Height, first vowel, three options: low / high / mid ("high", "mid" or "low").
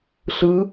high